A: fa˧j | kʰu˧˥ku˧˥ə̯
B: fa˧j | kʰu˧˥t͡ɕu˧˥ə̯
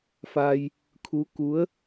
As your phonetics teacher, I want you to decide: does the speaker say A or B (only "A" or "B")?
A